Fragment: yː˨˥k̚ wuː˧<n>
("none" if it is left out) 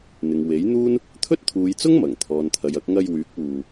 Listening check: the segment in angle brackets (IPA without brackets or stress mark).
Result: none